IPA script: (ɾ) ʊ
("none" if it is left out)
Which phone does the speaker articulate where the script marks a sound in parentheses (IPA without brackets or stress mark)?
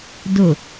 d